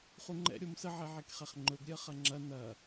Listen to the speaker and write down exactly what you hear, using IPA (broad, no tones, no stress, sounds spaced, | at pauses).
χ u ŋ͡ǃ ɛ̰ ɾʲ o m s ə ʕ ɛ ʕ e k χ ɛ χ ŋ͡ǃ ɵ ɡ ɾʲ ɜ χ ɐ ŋ͡ǁ ɐ n ɐ